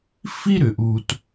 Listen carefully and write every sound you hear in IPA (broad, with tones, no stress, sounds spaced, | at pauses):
f i˥ ɾ ʏ˩ ʔ u˩ t